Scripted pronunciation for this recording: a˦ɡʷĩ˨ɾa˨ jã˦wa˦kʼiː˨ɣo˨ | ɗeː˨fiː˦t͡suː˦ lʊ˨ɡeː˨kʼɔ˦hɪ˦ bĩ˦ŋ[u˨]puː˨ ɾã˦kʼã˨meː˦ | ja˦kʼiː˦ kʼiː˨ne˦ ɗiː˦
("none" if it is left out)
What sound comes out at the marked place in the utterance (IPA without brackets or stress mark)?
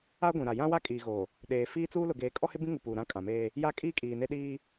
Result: u˨